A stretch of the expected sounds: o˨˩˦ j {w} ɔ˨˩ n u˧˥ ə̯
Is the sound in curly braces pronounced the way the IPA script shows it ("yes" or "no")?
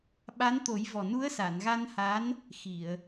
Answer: no